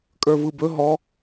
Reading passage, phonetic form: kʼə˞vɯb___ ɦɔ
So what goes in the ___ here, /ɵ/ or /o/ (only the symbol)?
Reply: ɵ